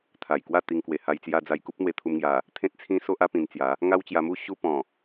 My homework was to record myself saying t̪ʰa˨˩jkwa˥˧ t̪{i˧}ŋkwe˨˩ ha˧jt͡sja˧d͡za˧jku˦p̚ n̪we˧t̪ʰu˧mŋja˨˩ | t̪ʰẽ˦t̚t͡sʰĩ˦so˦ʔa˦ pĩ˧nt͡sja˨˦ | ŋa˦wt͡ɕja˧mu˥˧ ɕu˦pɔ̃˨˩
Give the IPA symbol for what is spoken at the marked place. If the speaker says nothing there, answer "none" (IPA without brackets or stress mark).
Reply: i˧